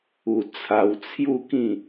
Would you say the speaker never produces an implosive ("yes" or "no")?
yes